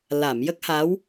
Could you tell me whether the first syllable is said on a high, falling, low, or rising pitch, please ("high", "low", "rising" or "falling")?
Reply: low